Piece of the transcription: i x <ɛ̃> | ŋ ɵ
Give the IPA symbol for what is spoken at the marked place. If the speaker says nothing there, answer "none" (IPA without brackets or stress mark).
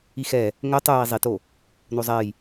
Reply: ɛ